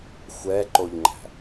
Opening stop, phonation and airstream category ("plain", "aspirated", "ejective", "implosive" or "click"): click